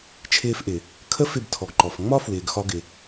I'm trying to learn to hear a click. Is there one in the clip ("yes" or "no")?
yes